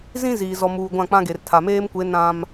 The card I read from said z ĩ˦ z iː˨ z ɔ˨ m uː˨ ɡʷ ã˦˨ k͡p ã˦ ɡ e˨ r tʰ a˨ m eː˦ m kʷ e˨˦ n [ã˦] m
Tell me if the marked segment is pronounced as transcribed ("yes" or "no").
yes